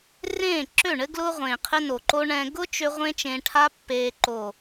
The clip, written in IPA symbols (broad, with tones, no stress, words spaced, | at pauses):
rẽː˦˨ ǁø˦˨ɳɘ˦ ɡlʊː˧ ʁʷẽː˨qʰɘ˧no˨ǃo˧ ɳɛ̃˧ ɡʊ˦t͡ʃø˧ ʁʷẽ˦t͡ʃẽ˧ ʈʰa˧pːeː˨ǃoː˨